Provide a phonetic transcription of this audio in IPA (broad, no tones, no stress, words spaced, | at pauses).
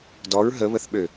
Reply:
dɔɹ ɦəβəθɓø